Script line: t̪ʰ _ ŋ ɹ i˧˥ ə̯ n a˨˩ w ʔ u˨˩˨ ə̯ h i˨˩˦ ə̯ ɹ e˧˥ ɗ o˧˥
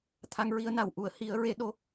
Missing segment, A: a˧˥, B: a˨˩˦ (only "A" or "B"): A